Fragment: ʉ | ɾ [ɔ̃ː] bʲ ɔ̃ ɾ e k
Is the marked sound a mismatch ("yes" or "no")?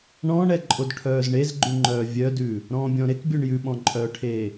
no